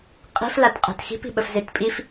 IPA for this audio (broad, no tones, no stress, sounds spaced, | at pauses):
qʼ i̤ f l a t qʼ ɛ̤ t x i̤ p i̤ ɓ ə f z e t pʼ i f